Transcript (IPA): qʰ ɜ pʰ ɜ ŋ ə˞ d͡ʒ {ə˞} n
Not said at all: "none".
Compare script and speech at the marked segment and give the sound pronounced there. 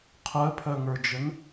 ə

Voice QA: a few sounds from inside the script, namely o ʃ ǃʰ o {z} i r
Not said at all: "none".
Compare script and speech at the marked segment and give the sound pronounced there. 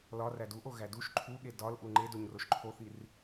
θ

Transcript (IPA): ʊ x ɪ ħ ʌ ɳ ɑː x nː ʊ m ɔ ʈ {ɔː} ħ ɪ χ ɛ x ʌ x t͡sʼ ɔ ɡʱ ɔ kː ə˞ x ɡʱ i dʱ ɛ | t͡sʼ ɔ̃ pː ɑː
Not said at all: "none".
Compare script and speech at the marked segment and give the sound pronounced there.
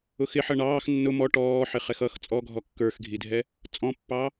ɔː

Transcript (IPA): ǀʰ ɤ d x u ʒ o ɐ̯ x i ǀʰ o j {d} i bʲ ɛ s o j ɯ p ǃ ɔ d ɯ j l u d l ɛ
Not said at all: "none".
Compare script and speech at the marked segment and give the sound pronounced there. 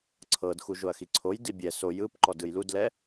d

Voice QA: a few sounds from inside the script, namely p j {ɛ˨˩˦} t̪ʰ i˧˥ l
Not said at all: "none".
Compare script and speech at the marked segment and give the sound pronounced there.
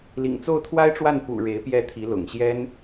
ɛ˥˩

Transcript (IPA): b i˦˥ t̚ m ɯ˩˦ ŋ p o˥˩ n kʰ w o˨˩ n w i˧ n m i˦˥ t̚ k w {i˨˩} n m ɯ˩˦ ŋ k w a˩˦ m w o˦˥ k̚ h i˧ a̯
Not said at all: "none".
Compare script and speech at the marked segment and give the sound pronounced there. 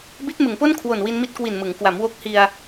i˨˩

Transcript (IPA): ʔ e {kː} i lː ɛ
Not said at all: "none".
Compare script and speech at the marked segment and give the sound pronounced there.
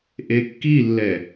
kː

